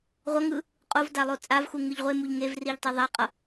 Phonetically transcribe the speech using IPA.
ʁʷ ʌ ŋ ɯ | qʼ o v d a lˠ o t͡sʼ a v x u ŋ ɯ ʎ ʁʷ e m u ʎ ŋ e v r i ʎ tˤ ɛ ðˤ a qʼ ʌ

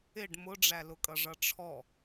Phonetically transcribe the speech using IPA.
ɪ ɖ m ʊ ɖ͡ʐ æ l ʊ kʼ ʌ ʐ ʌ ʈ͡ʂʰ ɔ

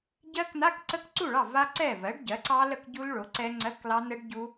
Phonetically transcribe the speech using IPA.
ɟ ɜ˦˥ k n a˧˥˧ k ǀ ə˦˥ k ǀ u˥˩ ɭ ɑ˥˩ v a˦˥ ǀ ɛ˥˩ v ɜ˩˥ ɖ ɟ ɜ˩˥ ǀ ɑ˦˥ l ə˥˩ k ɟ u˦˥ l ɭ o˩˥ ǀ ɛ˦˥ ŋ͡ǀ ɜ˧˥˧ k l ɑ˦˥ n ə˦˥ ɖ ɟ u˦˥

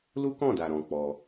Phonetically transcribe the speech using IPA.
l u˦ k ɔ̃˦˨ d a˨ ɾ ɔ̃˧ k͡p ɔ˧

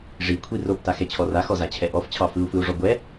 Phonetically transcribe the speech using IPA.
ʐ i kʷʰ i r o p t a x ɛ t͡ɕʰ ɔ r a x ɔ z a t͡ɕʰ ɛ ʔ ɔ f t͡ɕʰ ɑ f ɯ u̯ f ɯ u̯ ʐ ɔ ɡʷ ɛ

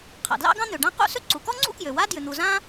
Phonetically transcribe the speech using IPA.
qʰ a̰˩ d l ɑ̰˥ ɡ ɑ̃˥ n̪ ø˩ ɖ ã˥ q ṵ˥ s ʏ˥ ǀ u˩ k ɔ˥ ŋ͡ǀ ṵ˥ k j ø˩ w a˥ d j ʏ˩ n̪ u˩ z ã˥

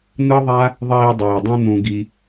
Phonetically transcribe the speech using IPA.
n̪ ɯ˦ ðˤ a˦ | ðˤ iː˧ dˤ iː˨ dˤ ũ˦ n̪ ũ˧ ɡ i˧

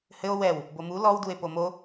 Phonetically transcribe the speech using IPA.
h ɘ o̯ w ɛ w | b o m u l ɔ w d u e̯ p o m o

